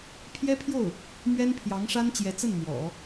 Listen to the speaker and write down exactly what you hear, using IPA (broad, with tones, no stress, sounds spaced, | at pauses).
pʰ j ɛ˥ pʰ j o˥˩ ʊ̯ | m ɥ ɛ˥ n pʰ j ɑ˧˥ ŋ ʂ a˥ n t͡ɕ j ɛ˧˥ t͡s ə˥˩ n m w ɔ̰˨˩˦